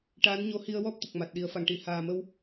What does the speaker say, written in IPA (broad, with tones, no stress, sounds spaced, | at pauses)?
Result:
ʈ a˧˥ n ɲ o˧˥ h i˧ ə̯ w ɔ˦˥ p̚ t̪ ə˨˩ k̚ m a˨˩ t̚ ɗ i˨˩˦ ə̯ f a˨˩ ŋ ʈ i˨˩˨ h aː˨˩ m ə˧ w